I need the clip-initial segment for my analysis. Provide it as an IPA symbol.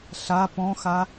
ɬ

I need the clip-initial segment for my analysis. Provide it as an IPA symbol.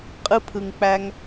qʼ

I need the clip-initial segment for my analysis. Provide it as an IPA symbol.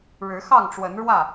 ɻ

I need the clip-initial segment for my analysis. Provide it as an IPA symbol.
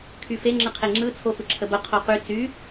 kʰ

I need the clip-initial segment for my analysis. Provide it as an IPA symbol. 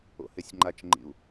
o̰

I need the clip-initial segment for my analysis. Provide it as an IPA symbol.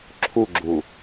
ǁʰ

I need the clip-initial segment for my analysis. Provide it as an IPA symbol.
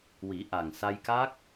w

